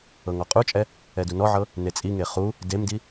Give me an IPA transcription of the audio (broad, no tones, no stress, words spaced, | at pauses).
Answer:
ɤŋɔqʼut͡ʃʼɛ | ɛdunɔʕɤ | net͡sʼiŋe χu | demdi